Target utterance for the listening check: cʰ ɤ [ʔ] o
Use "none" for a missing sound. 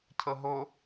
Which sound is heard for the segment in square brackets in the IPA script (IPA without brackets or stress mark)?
ɦ